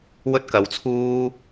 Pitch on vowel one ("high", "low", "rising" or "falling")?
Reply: high